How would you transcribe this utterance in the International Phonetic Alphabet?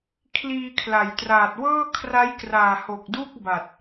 kʰliː˧kʰla˩˦jtraː˨˩t̚ wɤː˥˩kʰra˦˥jkraː˨˩ho˨˩k̚ du˥˩k̚ba˨˩t̚

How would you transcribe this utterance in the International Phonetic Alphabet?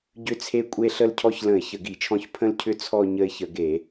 ɟʏ˦˨t͡sʰe˦˨kʷʼe˦˨ ɬə˦˨lcʰɔ˦˨çlə̃˧˩˧ɪ̯ çə˧˩˧ɡi˧˩˧t͡ʃʰɔ̃˦˨ç pʰə̃˦˨lcʰʏ˦˨ t͡sʰɔ˦˨ ɲə˦˨ɪ̯çə˧˩˧ɡe˧˩˧

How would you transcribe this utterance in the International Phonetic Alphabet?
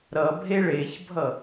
ɾʌ bʱeɭeçbʱʌ

